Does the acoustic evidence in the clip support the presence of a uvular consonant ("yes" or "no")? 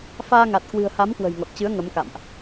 no